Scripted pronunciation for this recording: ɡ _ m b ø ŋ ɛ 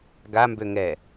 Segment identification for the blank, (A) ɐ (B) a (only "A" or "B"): B